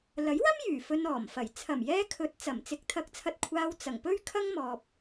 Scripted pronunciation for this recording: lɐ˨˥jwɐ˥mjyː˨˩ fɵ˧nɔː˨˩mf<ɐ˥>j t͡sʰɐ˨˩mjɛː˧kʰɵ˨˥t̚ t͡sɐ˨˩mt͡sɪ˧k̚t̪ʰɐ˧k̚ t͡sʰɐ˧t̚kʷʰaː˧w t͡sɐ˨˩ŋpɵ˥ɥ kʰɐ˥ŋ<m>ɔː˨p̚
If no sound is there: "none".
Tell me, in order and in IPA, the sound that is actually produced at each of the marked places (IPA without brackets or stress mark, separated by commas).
ɐ˨˩, m